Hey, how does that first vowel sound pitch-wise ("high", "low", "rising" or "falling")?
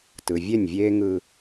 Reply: low